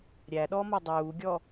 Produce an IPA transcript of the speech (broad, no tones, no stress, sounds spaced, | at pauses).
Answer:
ɾʲ æ ɗ ɔ m ɒ dˤ uː ɡʲ ɔ